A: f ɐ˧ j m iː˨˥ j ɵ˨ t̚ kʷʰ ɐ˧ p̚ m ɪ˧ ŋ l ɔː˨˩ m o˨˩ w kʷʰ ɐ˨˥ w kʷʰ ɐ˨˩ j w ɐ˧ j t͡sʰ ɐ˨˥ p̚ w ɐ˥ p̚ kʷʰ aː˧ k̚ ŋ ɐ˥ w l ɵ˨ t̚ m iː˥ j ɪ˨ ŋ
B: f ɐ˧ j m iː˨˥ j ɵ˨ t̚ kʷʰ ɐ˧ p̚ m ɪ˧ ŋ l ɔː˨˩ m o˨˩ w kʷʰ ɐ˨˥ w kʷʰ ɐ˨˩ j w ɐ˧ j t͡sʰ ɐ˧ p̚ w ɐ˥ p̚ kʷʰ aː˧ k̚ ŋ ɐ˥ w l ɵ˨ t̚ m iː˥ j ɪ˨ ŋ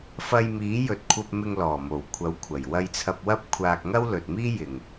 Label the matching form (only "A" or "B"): B